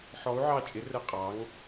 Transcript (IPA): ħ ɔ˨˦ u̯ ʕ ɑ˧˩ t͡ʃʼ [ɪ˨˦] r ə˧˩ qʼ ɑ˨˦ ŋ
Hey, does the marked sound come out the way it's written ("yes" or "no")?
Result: yes